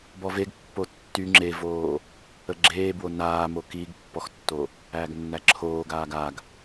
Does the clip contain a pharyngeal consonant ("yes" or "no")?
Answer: no